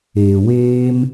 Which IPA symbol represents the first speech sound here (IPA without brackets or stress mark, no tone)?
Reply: eː